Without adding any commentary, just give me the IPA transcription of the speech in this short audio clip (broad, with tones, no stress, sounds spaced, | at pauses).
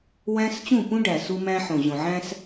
w æ̃˦ s t͡ɕ ũ˦˨ p ũ˦ ɖ æ˨ s u˦ m æ̃˦ ħ õ˨ ʑ õ˨ ʕ æ̃˦ s